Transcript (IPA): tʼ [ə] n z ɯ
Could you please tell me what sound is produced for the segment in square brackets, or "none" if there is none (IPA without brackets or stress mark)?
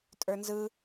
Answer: ə˞